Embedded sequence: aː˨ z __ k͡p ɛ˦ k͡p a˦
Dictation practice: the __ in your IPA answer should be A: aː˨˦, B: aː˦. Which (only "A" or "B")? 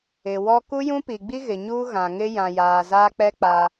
B